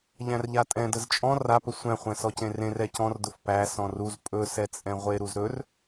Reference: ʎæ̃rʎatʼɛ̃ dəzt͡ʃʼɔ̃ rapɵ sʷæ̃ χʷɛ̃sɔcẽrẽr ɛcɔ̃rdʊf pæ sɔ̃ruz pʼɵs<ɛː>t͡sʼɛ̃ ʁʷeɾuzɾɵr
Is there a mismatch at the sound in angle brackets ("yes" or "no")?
yes